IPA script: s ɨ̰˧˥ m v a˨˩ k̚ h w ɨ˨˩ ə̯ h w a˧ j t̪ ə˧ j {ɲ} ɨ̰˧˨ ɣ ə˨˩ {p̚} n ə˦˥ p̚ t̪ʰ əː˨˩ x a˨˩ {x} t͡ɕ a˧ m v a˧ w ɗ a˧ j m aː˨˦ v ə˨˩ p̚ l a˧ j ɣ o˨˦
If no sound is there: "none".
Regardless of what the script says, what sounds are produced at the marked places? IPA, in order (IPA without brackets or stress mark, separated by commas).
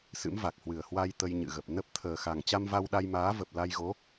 ɲ, p̚, ŋ